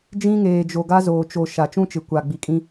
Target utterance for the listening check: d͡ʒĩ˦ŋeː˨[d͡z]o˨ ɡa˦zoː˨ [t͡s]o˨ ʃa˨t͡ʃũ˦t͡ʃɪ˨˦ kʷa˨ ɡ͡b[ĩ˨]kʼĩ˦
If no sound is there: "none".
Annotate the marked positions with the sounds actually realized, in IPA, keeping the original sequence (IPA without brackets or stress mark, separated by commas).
d͡ʒ, t͡ʃ, i˨